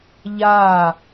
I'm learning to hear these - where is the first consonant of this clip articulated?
palate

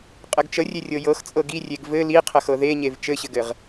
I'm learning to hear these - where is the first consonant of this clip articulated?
uvula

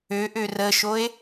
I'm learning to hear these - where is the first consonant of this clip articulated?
throat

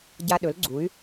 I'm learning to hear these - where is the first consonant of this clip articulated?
palate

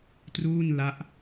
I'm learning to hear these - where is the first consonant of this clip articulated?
tongue tip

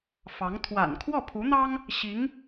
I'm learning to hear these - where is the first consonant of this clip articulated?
lips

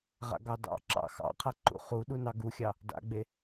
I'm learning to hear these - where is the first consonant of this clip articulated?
uvula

